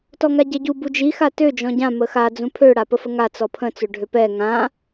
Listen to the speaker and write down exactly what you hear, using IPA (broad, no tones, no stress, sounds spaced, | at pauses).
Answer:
t ɔ ŋ a ɟ ɛ ɟ u b u d͡ʒ i x a t ø d͡ʒ ɔ̃ ɟ ã m ə x a d͡z ũ pʰ ø ɽ a p ə f ə ŋ a t͡s ɔ pʰ ə̃ t͡s ø ɖʱ ø p ɛ ŋ ã